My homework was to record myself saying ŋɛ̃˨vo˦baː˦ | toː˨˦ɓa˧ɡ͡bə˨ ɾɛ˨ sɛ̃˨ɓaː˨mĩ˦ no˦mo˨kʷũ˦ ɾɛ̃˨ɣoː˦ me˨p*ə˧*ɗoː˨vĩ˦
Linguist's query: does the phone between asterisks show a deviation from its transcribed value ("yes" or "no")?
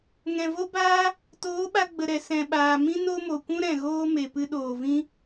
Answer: yes